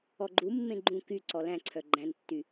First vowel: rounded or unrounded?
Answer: rounded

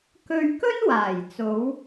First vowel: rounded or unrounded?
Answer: rounded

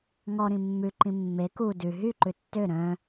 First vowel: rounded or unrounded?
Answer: rounded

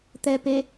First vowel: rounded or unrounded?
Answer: unrounded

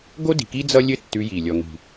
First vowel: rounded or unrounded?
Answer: rounded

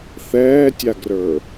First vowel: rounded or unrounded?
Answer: unrounded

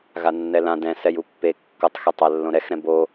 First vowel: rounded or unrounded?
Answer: unrounded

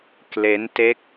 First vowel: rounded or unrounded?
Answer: unrounded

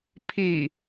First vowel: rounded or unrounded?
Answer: unrounded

